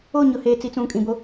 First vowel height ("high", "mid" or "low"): mid